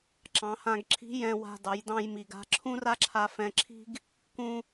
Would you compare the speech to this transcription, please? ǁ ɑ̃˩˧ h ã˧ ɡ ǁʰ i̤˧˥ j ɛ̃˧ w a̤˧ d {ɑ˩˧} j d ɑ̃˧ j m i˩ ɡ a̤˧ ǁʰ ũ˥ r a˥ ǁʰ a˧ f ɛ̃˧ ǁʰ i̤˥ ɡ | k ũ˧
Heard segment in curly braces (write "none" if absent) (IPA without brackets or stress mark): ɑ˩˧